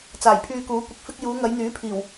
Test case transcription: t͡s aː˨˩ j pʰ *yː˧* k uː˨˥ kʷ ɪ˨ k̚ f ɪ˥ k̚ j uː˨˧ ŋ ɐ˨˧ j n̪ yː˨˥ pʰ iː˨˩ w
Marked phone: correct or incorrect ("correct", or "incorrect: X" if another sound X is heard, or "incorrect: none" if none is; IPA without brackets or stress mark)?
correct